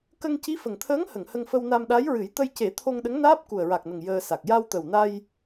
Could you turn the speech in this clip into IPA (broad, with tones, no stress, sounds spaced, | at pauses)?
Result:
k ə˧ ŋ c i˧˥ f ə˨˩ ŋ t̪ʰ əː˧˥ ŋ h ə˨˩˨ ŋ h ə˧ ŋ f ə˧ w n a˧ m ɗ a˧˥ j ɹ ɨ˨˩˦ j t̪ ə˧ j c e˨˩˦ t̪ʰ o˧ ŋ ɗ ə˧˥ ŋ n aː˦˥ p̚ k u˨˩ ə̯ ɹ a˨˩ k̚ n ə˨˩ ŋ j əː˧ s a˨˩ k̚ j a˧ w t̪ ə˨˩ w n a˧ j